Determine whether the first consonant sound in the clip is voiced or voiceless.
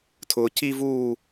voiceless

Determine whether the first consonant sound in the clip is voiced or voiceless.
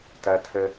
voiceless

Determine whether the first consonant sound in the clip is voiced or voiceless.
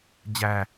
voiced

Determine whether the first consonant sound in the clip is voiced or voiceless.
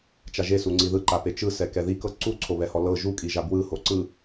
voiceless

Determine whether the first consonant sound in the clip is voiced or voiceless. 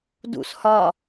voiced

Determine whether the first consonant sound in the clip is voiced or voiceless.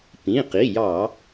voiceless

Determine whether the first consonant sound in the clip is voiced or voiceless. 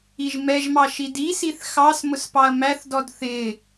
voiced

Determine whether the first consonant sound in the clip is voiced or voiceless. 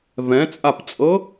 voiced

